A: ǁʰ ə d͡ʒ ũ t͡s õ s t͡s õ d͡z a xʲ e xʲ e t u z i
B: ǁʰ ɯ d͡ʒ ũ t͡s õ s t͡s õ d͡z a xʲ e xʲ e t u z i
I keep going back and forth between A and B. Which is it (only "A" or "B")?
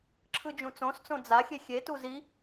B